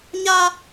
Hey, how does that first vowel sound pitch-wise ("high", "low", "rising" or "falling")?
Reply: high